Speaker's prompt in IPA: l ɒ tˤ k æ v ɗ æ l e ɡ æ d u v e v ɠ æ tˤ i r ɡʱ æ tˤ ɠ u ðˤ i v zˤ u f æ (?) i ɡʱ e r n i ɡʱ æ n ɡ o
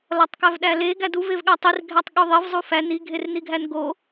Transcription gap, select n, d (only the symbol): n